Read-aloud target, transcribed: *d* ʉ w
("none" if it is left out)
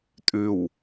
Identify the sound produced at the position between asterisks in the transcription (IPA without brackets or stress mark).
tʼ